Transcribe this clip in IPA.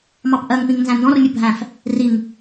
mɑpʔɜŋpĩŋ nzæ̃ndɔ̃rmʲʊ bʱæ̃f | riŋ

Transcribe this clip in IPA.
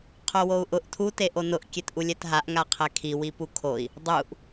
qʰowou̯ʔʊʔ tʰu teʔonʊʔ kʲetʔulʲɛtɦaʔ ŋaqʰɛkʰi wipukʰoi̯ | dˤuʔ

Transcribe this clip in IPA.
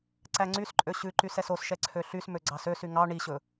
ǀæŋ͡ǀysǃʼø ɕʉǃys ɛsosʃɛ ǀʰøɬysmø ɡ͡ǀɑsøsy ŋɑ ɳiɕɵ

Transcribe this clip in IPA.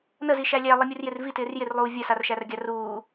nəzi ʃælʲæ lˠimʲurjɪr vitɪːr jɪrlˠuː vʲɐsarʃær ɡʲaruː

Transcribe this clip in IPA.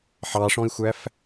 ħɑʂɔ̃i̯xʷæf

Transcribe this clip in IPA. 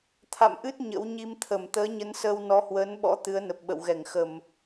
t̪ʰa̰˧˨mʔɨ˦˥t̚ ɲə̰˧˥wɲi˧mt̪ʰə˧˩m t̪əː˨˦ɲə˨˦n səː˧w nɔ˨˦hwəː˨˦nɓɔ̰˧˥ t̪ɨ˨˦ə̯nə˨˩p̚ ɓə̰˧˨wɣɛ˧˩ŋxə˧˩˨m

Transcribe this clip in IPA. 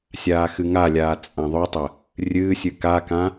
sʲaːxɨŋalʲaː t͡sʼãðˤʊtˤə | rʲɨːsʲɨ kakã

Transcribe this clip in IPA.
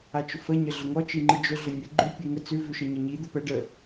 at͡ʃʊfəɲə ɮʊŋɔt͡ʃi ŋ͡ǃɨd͡ʒʊɮʊ nʲə ɡ͡ǃʉ pʲʉŋə t͡sʉvʉ ʃəɲɪɲi d̪ʊpɛ ɖə

